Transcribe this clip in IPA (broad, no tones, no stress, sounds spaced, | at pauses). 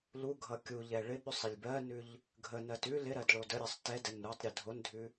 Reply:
l u ɡʱ ʌ kʲ u ʎ ɛ ɭ ɪ ɓ ʉ sˤ ɪ lʲ b ɜ n ʉ ʎ | ɡʱ ə n ɜ t ʉ l ɪ ɾ ɜ d ɭ o d ə ɾʲ ɜ sˤ t ɛ d ɛ n ɾ u tˤ ɾʲ ə dʱ o n dʱ ʉ